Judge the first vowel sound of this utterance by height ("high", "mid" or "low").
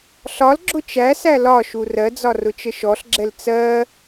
low